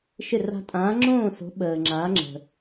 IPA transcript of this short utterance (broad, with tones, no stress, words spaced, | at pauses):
ʃɪ˥˨ra̤˦ tʼãː˨˥ŋ͡ǁõː˥˨so̤˨˥ ɓəː˨ŋ͡ǁaː˨˥ŋ͡ǁə̤˨